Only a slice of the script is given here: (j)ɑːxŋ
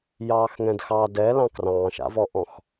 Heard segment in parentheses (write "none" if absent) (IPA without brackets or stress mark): j